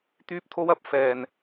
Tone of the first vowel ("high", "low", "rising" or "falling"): high